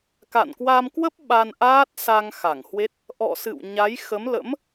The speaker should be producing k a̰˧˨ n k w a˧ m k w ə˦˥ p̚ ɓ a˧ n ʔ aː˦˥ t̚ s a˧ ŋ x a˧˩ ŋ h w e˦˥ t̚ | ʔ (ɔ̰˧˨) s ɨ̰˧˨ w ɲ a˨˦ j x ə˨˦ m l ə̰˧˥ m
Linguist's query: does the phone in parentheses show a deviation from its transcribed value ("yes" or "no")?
no